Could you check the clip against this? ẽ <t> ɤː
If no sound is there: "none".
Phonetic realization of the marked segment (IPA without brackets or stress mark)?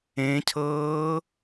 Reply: cʰ